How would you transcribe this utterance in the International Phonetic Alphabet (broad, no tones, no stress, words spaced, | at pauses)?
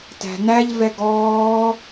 tæ̤næʎ vɛɡɔː